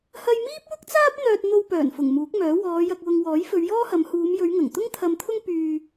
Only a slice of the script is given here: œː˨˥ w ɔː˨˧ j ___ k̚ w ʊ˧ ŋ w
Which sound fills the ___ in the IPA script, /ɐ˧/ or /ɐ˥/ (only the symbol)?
ɐ˧